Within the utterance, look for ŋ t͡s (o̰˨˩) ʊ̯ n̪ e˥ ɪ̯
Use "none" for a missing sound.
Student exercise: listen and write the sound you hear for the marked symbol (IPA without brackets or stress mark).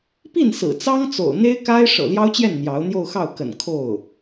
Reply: o̰˨˩